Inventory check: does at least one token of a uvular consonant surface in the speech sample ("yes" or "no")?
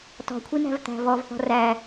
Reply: no